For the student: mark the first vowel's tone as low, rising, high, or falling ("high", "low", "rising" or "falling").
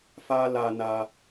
high